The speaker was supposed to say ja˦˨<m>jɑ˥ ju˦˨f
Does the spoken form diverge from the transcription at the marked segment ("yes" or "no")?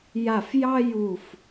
yes